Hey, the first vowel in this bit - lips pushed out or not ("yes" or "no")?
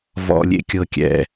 yes